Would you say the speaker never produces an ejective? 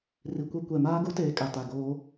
no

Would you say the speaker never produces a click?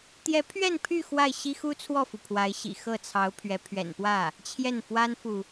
yes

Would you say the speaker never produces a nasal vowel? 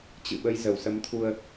yes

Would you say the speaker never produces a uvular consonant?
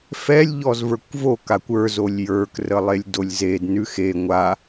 yes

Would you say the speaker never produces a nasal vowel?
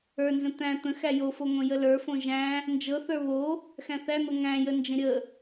no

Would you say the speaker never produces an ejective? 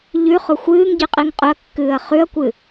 no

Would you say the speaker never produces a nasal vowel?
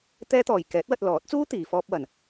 yes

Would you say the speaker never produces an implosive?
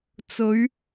yes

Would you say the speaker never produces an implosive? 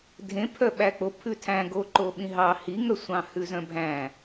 no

